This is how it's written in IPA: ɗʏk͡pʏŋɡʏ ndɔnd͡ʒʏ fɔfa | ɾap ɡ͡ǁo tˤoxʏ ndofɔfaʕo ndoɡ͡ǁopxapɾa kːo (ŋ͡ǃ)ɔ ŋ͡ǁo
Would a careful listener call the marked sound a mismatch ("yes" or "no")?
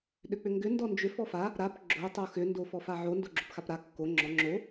yes